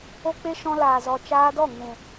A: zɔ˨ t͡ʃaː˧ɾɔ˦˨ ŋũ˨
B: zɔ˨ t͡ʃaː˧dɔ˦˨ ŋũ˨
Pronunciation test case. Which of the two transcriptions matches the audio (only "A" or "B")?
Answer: B